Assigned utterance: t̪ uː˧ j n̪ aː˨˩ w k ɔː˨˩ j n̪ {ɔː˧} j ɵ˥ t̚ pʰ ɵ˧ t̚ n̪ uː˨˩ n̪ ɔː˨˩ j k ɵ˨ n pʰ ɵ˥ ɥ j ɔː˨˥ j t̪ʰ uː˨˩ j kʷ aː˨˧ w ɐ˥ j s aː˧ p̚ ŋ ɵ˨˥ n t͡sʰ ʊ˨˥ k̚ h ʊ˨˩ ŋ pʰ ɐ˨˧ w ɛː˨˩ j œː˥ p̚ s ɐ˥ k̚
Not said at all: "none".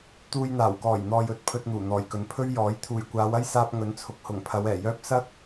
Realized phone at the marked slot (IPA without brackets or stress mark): ɔː˨